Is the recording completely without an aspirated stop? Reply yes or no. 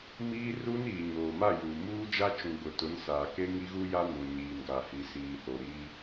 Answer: yes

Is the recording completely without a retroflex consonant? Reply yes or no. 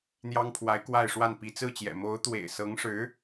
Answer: no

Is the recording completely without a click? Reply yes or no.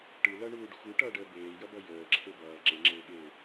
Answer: no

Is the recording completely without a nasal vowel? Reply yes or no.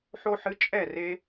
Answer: yes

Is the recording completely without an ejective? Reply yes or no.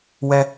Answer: yes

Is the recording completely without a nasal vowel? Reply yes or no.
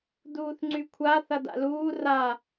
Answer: yes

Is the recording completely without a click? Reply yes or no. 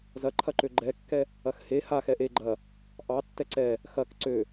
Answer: no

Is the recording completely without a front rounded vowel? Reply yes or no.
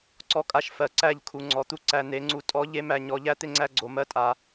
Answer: yes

